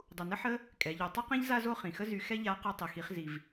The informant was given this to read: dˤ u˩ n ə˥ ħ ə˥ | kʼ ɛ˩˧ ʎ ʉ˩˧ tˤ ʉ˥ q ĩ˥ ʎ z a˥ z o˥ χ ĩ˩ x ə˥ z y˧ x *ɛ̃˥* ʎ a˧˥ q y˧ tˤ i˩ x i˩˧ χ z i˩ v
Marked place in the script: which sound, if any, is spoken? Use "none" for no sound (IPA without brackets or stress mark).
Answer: ɛ˥